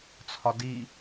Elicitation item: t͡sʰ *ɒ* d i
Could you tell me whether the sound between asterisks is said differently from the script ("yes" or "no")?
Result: no